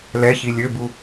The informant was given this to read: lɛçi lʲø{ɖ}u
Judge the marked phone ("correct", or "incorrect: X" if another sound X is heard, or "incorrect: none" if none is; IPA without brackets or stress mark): incorrect: b